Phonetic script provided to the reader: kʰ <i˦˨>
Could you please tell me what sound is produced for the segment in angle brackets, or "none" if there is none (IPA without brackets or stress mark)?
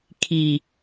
i˦